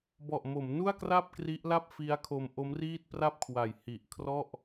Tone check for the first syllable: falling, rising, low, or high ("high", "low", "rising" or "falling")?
low